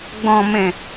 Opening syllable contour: low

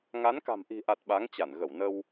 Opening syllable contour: rising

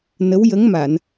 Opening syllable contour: rising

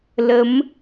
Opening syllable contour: rising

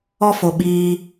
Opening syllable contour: high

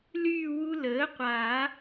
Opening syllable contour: falling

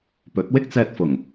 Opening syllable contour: rising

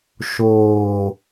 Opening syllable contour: low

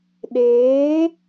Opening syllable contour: rising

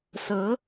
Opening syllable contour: rising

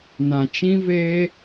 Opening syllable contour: low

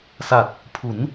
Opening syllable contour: low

